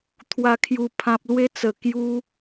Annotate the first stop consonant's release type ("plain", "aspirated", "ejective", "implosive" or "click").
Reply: aspirated